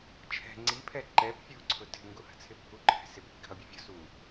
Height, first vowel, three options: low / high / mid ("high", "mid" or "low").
mid